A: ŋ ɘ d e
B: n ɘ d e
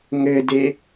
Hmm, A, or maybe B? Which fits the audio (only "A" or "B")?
A